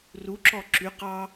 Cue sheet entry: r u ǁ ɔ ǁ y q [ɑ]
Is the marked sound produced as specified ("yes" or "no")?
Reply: yes